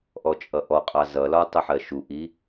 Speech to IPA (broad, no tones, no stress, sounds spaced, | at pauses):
ʔ ɔ t͡ʃʼ ʌ ʔ ɔ qʼ ɑ z ʌ l ɒ tˤ ɪ ħ ɜ ʃ u ʔ i